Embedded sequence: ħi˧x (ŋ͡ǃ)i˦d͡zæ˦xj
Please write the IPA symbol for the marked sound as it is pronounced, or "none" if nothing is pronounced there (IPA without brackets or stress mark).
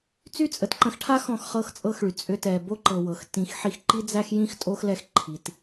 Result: ǃ